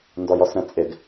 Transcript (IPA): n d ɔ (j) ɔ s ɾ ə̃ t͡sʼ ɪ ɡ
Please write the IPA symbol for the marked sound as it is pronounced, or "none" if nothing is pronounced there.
j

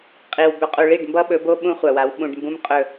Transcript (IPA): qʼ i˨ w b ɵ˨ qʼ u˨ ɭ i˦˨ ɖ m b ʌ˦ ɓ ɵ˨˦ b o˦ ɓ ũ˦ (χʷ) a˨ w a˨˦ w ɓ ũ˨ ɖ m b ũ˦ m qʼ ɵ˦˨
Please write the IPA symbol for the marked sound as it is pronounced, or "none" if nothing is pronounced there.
χʷ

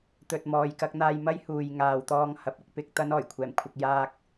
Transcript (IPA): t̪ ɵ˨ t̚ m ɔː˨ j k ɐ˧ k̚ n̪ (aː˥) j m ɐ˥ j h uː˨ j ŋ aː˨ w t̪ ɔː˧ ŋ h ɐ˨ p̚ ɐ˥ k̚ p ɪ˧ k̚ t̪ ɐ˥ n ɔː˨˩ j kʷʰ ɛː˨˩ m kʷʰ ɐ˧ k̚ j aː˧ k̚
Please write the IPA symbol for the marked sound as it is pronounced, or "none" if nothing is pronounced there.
aː˧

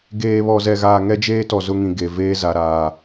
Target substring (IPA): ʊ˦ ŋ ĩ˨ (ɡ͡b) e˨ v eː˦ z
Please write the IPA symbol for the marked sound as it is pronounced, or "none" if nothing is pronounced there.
ɡ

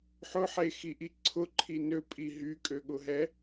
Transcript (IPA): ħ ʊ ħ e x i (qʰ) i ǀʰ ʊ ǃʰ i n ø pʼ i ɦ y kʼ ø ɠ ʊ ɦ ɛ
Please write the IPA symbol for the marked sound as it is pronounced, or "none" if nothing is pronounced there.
ʔ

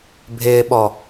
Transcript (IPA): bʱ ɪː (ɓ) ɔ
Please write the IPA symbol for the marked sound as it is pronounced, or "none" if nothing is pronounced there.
ɓ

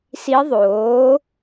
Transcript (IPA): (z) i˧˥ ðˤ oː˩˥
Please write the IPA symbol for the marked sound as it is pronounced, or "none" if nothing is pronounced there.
s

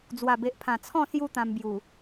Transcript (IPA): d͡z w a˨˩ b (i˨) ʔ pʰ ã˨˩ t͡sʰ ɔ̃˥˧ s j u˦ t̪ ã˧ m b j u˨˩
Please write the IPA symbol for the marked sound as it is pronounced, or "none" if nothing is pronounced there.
e˨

